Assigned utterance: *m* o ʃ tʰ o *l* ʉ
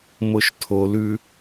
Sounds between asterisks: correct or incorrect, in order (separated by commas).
correct, correct